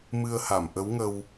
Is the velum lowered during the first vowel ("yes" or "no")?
no